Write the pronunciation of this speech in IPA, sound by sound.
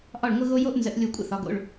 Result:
ʔ ɒ˧˩ ɭ ŋʷ ə˧ ɣ o˧ j o˧ ʔ n z ə̰˩˧ ʔ lʲ o˧˩ kʷʼ ə̰˧˩ θ ɒ˩˧ ɡ o̰˩˧˩ ɭ

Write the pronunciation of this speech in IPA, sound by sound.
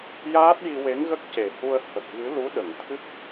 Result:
j aː˦˥ t̚ j i˧ w e˧˥ ŋ ɣ ə˦˥ k̚ c e˨˩ h u˧ ə̯ h ə˨˩ k̚ ɣ ɨ˧˥ l u˧˥ ɗ ə˨˩˨ ŋ t̪ʰ ɨ˦˥ k̚

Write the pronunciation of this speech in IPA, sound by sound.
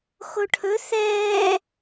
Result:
x o ʈʰ ɵ θ ɛː

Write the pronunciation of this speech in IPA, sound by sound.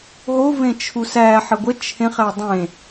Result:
ɦ o v ẽ t͡ʃʰ u s æ ħ ə ɡʷ ə t͡ʃʰ ẽ χ æ dˤ ẽ

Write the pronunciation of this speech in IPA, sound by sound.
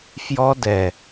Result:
f j ɔ˦ d ɛ˨

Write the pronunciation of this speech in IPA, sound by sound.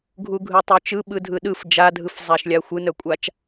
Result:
ɡʱ u ɡʱ ɯ tˤ œ t͡ʃ ɯ ɓ ɯ dʱ ɯ ɗ ɯ f d͡ʒ a dʱ ɯ f zˤ a ʃ lʲ a xʷ ɯ n œ kʷʼ a t͡ʃ

